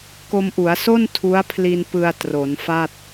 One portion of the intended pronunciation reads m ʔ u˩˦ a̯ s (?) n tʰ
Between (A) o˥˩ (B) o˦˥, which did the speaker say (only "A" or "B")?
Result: A